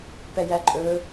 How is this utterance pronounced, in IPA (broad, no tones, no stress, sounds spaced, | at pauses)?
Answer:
p ɛ j æ ǃʼ ɵː